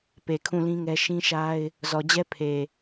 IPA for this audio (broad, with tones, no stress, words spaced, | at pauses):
pe˨kʰũ˦˨lĩ˦ŋɛ˦ ʃĩ˦ʃa˦ɪ̯ | zɔ˨d͡ʑɛ˦ pʰe˨